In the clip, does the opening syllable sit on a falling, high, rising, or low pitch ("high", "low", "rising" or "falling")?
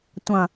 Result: low